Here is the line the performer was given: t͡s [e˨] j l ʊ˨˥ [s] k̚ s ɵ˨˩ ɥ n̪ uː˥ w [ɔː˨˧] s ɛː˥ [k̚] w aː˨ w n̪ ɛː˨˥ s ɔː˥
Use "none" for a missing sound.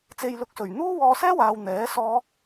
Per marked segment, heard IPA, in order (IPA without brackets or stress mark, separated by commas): e˨, none, ɔː˧, none